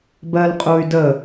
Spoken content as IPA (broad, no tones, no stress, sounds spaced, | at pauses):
b ɜ l qʼ u y̯ d ə